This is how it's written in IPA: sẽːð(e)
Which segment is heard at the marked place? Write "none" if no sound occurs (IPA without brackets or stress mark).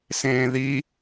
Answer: i